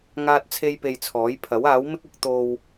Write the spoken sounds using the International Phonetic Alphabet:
ŋ aː˥ t̚ t͡sʰ e˥ j p e˧ j t͡sʰ ɔː˨˥ j pʰ ɐ˨˥ w aː˨˥ w m ɪ˥ k̚ ʊ˥ k̚ t̪ o˧ w

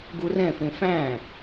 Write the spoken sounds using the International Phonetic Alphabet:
ɡ u r ɛ̃ f ẽ f æ̃

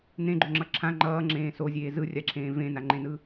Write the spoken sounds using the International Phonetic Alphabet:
n̪ ẽ ɡ͡ǃ o ŋ͡ǁ ʌ ǁʰ ã ŋ͡ǃ ʌː ŋ͡ǁ ẽː s o zʲ eː z ɯ rʲ a ǁʰ ẽː v ẽ n a ŋ͡ǃ ẽ n ɯ

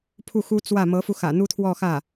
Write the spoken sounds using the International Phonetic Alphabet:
pʰ u˥˩ x u˥ t͡s w ä˥˩ m ɤ˧˥ f u˧ x ä̰˨˩ n̪ u˥ t̪ʰ w ɔ˥˧ x ä˥˩

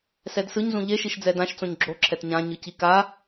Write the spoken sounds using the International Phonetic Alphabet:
s ɛ d s ɯ ɲ z ũ ʎ e ʃ i ʃ d͡z ɛ d ã ʃ t͡s õ ɲ ɡ͡ǁ o ǁʰ ɛ t ɲ ã ɲ ɯ c i k a

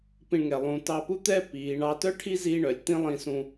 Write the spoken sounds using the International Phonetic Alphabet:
p ĩ˧ ɳ ŋ ɛ˨ lˠ ũ˨ t ɑ˧ p u˦ t̪ ɛː˦ p iː˨˦ ɳ ɑ˦ t œ˦ ʈʰ i˦ z iː˦ ɳ œ˨ lʲ t̪ ĩ˦ lˠ ĩ˧ s ũ˧

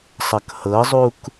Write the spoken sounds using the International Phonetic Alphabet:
sˤ ʌ k h ɤ zˤ u k

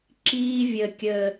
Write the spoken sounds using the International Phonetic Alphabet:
ǁ iː˧ vʲ ə˨ kʲ ə˨

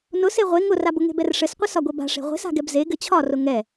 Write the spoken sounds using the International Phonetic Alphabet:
n ʊ s e ʁʷ e ŋ ʊ r a b ʊ ŋ e̤ b ɛ r ʂ ɘ s qʷ ɘ s ɒ ɡʷ e b a̤ ʂ e̤ ʁʷ e̤ s a̤ ɡ ɛ b z e ɡ ɘ t͡ɕʰ ɒ r ʊ ŋ ɛ

